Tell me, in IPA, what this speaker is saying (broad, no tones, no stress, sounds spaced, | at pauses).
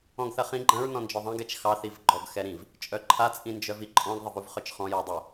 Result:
ɔ̃ ɡ θ ɐ χ ĩ ɡ͡ǃ ɐ̃ ɹ n ɔ̃ n d͡ʒ ɔ ðˤ ɐ̃ ɡ ɛ t͡ʃ x ɑ θ i v ɡ͡ǃ ɔ ɡ x ɛ ɾ ĩ v | t͡ʃʼ œ ǃʰ a t͡sʼ ĩ n d͡ʒ œ v i ǃʼ ɔ̃ ɡ ðˤ ɘ v u v χ œ t͡ʃ χ ɔ̃ j ɑ dˤ ɛ